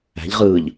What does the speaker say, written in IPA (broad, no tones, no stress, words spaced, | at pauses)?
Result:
æ̤ʎʁɯːʎ